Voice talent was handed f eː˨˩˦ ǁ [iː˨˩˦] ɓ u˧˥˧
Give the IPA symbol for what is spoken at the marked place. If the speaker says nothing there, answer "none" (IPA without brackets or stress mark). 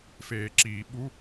iː˨˩˦